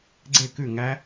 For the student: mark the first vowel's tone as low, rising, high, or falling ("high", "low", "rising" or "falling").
falling